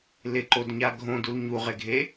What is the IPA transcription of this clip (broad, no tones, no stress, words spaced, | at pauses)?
lɪǃodɲa ɡʱõdul ɲuʁeɡʱe